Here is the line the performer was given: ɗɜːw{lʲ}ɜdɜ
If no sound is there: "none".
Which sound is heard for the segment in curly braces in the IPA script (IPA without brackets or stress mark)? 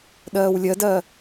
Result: lʲ